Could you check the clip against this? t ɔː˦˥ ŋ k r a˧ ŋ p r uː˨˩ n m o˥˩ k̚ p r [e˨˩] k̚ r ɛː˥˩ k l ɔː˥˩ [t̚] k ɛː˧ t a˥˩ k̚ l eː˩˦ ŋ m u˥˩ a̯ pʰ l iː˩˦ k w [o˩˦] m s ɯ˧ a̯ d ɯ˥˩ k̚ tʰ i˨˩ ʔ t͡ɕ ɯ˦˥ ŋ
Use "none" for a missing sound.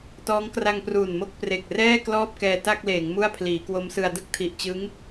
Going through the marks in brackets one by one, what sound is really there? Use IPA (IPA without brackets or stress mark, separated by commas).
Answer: e˨˩, p̚, o˦˥